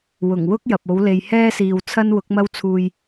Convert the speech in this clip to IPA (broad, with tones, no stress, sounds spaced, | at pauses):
w ʊ˨˩ ŋ w ʊ˥ k̚ j ɐ˨ p̚ o˨˥ w l e˨ j h ɛː˥ s iː˨ w t͡sʰ ɐ˥ n w ʊ˨˥ k̚ m ɐ˥ w t͡sʰ uː˧ j